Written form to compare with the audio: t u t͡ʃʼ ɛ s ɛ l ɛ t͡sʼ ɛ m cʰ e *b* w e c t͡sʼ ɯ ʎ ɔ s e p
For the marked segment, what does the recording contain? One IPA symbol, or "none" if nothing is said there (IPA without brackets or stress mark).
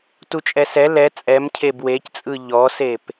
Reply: b